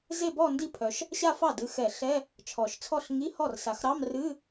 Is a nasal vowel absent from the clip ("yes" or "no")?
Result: yes